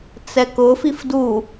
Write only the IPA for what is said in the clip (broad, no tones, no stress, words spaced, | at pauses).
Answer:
t͡sɛkʊfif du